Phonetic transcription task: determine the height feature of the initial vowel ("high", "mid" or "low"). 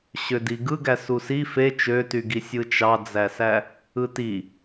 mid